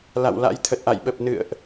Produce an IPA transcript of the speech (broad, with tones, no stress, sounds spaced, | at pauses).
l a̰˧˨ w l a̰˧˥ j t̪ʰ ə˨˩ t̚ ʔ a̰˧˨ j ɓ ə˨˩ p̚ n ɨ̰˧˨ ə̯ ʔ